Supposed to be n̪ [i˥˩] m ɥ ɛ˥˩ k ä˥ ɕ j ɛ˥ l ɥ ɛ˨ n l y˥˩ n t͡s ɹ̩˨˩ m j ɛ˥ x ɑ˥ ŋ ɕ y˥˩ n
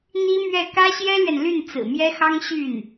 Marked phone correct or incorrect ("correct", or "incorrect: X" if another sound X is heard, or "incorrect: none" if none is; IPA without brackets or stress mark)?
incorrect: i˥